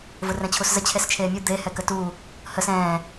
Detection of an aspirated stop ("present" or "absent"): present